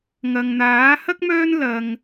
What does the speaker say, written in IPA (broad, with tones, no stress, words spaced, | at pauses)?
ŋɐ˨ŋn̪aː˨˥ hɐ˥k̚mœː˥n lɐ˧ŋ